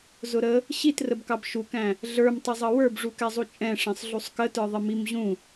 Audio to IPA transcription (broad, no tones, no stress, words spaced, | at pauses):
zʊɾə | ɕitrəbkɑb ʃukæ̃ | ɮə˞mtˤɪzˤʌ wə˞bʐukɛzˤu t͡ʃʼɛ̃ʂɛ̃sˤɮusˤ kətə˞ðˤɪ mimʑũ